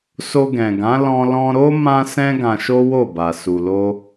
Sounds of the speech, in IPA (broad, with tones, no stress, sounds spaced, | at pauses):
s o˧ ɡ ɛ̃˨ ɡ ã˨˦ l ɔ̃˧ l ɔ̃˧ ɾ o˦ m ã˦ s ɛ̃˦ ɡ ã˧ ʃ o˦ w o˦˨ b a˨ s u˨ l o˧